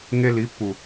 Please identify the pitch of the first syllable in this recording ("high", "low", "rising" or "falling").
high